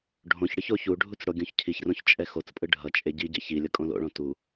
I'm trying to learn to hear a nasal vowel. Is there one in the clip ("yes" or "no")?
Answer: yes